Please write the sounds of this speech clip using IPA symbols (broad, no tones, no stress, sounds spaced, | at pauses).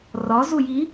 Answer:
r ɒ z u j i